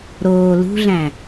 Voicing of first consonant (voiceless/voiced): voiced